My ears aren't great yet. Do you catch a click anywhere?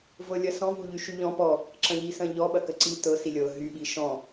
yes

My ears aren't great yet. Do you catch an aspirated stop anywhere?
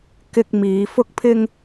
yes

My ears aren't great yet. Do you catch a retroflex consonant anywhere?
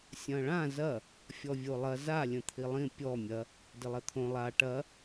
yes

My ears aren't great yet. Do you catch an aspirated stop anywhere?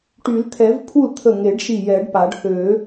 yes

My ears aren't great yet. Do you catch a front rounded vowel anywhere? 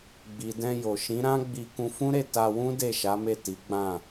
no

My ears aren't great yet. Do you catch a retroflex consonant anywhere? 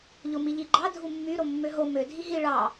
yes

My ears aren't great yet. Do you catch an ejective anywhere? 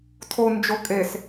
yes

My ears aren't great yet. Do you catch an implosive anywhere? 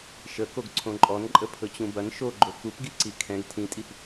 no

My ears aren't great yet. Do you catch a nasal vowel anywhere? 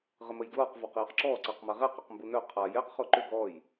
no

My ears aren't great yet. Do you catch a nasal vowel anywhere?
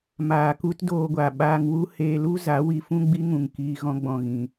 yes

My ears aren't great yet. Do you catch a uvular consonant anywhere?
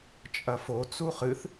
yes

